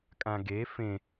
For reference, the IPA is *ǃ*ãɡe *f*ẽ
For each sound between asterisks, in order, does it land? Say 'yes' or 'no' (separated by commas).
no, yes